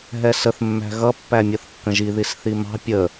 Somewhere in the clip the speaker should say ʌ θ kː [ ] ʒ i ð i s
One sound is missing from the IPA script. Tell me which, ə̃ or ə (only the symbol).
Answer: ə̃